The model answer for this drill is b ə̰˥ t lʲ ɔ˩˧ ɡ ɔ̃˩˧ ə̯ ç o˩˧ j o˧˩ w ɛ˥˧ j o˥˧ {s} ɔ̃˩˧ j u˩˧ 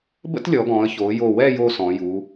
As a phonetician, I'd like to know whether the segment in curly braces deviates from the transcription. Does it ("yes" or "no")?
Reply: no